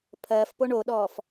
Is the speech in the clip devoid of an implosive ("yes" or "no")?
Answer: no